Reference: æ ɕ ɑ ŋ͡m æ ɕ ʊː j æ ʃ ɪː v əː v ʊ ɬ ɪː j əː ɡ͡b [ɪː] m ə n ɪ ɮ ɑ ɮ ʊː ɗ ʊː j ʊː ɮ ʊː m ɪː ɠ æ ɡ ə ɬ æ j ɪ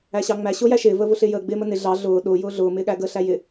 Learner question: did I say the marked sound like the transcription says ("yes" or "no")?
yes